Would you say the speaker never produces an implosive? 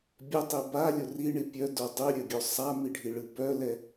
yes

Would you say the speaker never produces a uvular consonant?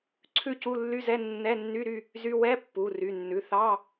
yes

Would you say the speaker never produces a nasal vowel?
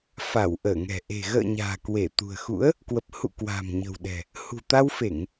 yes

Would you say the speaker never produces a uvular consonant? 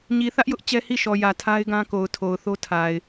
yes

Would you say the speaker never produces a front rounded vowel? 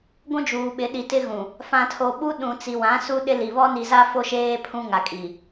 yes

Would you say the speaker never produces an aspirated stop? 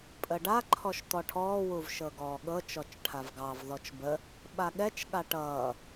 no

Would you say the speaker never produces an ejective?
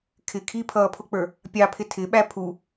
yes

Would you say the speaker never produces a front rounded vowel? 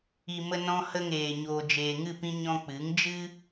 yes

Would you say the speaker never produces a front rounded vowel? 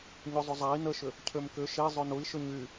no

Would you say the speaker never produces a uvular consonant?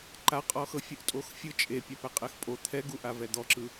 no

